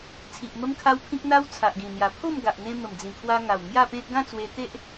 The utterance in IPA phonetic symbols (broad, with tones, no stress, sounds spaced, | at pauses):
t͡sʰ i˨ ʔ m ə˦ m kʰ a˦ w pʰ ĩ˦ k̚ n̪ a˦ w t͡sʰ a˨ ʔ ɡ ĩ˨˩ n̪ j a˨˩ pʰ o˥˧ m ɡ a˨ ʔ n̪ ẽ˧ m ə˨˩ m d͡z ĩ˨˩ kʰ w a˧ ŋ a˨˩ w ŋ j a˥˧ p ẽ˦ t̚ ɡ ã˥˧ t͡s w e˧ t̪ e˦ ʔ